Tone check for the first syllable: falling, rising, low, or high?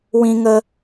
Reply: high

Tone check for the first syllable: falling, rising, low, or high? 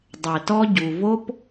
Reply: low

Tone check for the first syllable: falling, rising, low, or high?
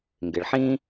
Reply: low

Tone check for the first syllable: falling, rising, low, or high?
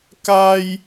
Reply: high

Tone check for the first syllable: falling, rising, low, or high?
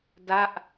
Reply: falling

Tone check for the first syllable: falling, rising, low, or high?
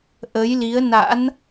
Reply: rising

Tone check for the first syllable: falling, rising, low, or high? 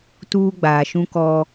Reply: high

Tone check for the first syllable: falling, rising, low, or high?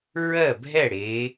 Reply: falling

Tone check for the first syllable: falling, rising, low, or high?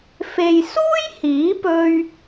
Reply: low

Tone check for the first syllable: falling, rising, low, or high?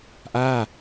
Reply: falling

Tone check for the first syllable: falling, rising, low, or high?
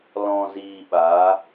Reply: low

